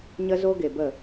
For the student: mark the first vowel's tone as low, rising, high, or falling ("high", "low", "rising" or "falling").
high